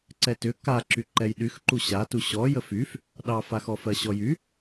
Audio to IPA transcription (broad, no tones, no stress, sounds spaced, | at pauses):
ǀ ɛ t ʏ k a ǁ y ǃ ɛ j ɗ y x ǃ u ɕ a t u ɕ ɔ j ə f y f | ɗ ɑ f a x ɔ f ɜ ɕ ɔ j y